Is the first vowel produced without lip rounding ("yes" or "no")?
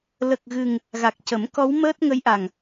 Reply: yes